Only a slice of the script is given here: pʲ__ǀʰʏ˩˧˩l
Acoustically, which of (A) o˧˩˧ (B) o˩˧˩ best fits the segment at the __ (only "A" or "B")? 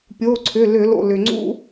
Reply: B